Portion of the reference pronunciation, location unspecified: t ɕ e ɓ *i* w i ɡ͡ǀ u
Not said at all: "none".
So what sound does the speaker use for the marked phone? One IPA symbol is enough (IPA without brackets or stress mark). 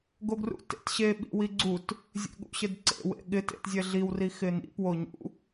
ḭ